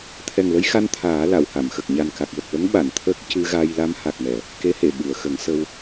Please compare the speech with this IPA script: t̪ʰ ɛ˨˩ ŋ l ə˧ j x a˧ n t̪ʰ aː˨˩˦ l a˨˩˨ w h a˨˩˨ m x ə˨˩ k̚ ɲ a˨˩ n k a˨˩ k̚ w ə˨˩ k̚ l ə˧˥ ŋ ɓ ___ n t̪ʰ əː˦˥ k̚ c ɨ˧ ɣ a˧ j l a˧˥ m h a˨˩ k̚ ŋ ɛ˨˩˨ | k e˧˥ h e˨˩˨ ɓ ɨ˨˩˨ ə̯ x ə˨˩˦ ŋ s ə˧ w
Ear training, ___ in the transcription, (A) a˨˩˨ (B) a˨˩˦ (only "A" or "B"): A